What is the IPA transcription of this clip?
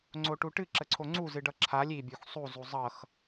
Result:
ŋ͡ǀoʈuʈɨ ǁəǀʰoŋ͡ǀu zɨɖʌǁʰalʲ i bʲuxsˤu zuzˤʌx

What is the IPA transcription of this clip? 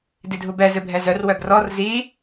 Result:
didʱubɛ zɨbʱɛzœr wœɡrɔr zi

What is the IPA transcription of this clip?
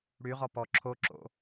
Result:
ɽyʁɔ pɔ ǁʰoǁo̰

